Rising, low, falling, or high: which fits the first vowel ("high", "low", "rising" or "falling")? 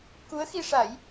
rising